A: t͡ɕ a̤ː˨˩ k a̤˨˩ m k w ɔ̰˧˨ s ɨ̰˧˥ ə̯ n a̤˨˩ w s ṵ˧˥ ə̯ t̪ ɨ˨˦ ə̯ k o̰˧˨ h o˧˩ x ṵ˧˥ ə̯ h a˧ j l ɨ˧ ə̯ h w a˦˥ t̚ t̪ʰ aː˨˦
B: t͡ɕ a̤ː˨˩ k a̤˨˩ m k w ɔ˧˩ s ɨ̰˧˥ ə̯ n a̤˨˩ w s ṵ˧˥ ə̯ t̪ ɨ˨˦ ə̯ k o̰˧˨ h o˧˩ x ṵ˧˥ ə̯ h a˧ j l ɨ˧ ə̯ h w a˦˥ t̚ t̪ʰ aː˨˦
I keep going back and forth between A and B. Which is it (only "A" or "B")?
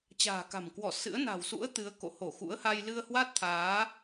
B